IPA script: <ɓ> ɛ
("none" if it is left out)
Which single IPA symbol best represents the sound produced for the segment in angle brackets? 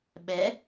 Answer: ɓ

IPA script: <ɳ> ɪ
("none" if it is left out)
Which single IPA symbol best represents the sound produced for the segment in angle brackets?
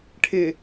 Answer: ʈʰ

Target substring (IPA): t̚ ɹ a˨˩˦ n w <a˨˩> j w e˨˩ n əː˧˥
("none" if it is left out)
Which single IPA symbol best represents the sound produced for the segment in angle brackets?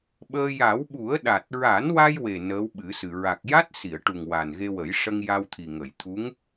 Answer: a˧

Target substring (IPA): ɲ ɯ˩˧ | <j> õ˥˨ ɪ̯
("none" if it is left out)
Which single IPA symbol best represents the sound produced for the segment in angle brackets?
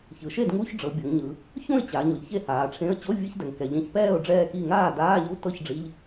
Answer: ç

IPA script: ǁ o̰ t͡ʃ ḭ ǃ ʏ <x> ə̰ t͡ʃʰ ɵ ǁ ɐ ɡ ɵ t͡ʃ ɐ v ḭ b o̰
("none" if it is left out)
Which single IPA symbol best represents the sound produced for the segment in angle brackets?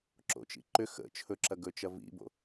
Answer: x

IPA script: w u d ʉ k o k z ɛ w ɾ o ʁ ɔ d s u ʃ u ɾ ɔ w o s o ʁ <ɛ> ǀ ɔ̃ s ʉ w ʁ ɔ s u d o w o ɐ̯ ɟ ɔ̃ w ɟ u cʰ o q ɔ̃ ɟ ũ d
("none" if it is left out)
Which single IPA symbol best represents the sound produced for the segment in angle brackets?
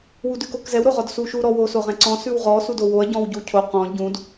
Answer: ɛ̃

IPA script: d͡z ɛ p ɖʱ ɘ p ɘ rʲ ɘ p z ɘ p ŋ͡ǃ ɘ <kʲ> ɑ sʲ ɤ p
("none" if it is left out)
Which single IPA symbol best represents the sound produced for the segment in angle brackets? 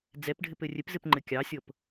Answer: kʲ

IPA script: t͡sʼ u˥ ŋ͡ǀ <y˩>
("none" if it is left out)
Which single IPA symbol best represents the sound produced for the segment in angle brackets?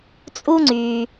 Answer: y˧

